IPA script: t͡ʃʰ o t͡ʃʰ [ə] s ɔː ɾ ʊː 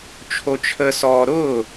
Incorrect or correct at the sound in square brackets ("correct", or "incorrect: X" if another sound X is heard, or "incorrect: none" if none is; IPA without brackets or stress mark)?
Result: correct